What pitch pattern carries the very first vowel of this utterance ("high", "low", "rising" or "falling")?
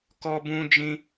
high